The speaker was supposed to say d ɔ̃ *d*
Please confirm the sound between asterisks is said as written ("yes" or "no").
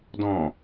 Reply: no